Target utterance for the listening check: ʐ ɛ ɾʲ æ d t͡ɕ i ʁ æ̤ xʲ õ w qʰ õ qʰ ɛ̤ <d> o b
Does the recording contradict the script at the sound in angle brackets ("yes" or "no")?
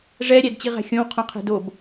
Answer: no